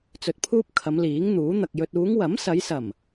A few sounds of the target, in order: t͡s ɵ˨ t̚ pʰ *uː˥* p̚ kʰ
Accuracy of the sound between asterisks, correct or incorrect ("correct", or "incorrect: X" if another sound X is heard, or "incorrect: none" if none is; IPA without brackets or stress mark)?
correct